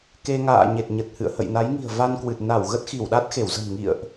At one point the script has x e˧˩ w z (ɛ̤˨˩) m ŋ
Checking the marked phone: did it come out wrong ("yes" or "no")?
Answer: yes